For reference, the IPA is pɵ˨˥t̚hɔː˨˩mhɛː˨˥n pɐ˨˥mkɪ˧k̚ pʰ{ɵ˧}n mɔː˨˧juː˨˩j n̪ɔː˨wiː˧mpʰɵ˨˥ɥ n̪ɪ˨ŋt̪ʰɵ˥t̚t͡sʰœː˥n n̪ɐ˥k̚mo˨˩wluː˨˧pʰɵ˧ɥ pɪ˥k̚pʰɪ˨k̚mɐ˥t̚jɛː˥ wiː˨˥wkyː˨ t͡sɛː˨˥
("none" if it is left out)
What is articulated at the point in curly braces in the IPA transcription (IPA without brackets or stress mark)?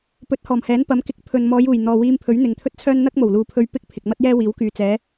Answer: ɵ˨